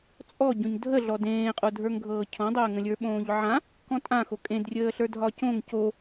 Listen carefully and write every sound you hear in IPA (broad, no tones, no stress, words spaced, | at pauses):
t͡sʼɔ ɟõɲdʱəɮɔ dẽːqʼodʱə˞ŋ ɡʱɤːcʰɔ̃dˤəːŋə̃ lʲə˞ɓõːʎʕã | kɔ̃tʼã xokʼẽd rʲəːɬə˞dʱɒcõŋ co